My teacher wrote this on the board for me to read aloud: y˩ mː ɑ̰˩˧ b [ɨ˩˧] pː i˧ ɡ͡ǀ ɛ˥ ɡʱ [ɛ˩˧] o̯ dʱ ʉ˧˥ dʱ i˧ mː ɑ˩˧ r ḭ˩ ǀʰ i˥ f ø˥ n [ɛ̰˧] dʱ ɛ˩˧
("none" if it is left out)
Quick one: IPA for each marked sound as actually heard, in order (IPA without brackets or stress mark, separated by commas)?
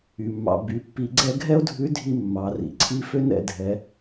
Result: y˩˧, ɛ˥, ɛ̰˧